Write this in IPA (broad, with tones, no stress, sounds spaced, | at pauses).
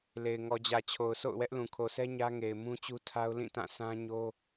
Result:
l e˨ ɪ̯ ŋ ɔ˨ d͡ʑ ä˨ t͡ɕʰ o˨ ʊ̯ sʰ o̰˦˨ ʊ̯ w ɛ˦ ʔ l ũ˨ kʰ o˨ s ɛ˦ ɲ ä˦ ŋ e˨ ɪ̯ m ũ˦ t͡ɕ u˦ tʰ a˦ ʊ̯ l ĩ˦˨ t ã˦˨ s ã˦ ɲ o˦